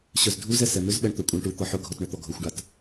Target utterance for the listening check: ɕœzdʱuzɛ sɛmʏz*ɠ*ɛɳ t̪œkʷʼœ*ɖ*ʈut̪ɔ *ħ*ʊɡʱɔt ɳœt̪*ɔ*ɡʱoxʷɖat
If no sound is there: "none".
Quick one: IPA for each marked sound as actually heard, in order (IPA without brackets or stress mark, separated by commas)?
ɓ, ɳ, ħ, ɔ